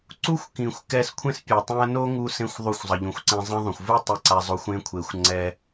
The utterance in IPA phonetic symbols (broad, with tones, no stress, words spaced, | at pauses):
ǀu˥xʷkĩ˩xʷ kɛ˧skʷʰẽ˥s pʲu˩tˤũ˧ɐ̯ no˥ŋu˧sẽ˧xʷ ðˤu˧xʷzˤʌ˩ʎũ˩xʷǀẽ˧ zˤĩ˧ðˤũ˩xʷvɯ˥ tˤi˧ǀa˧zˤo˧xʷ ẽ˧kʷʰe˩xʷ ŋ͡ǀɛ˧